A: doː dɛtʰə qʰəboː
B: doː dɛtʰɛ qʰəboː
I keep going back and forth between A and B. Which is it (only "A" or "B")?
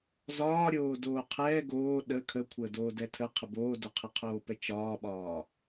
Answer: A